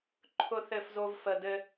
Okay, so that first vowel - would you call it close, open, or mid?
close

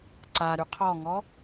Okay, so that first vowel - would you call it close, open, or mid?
open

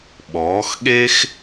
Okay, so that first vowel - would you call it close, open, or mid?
mid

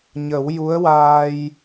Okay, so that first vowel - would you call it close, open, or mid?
mid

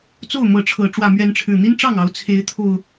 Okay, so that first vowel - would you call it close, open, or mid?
mid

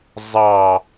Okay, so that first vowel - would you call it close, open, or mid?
open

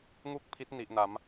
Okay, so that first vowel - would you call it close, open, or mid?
close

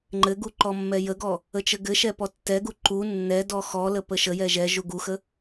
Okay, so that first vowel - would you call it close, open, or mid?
mid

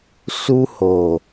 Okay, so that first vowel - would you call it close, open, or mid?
close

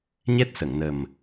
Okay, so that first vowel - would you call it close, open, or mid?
mid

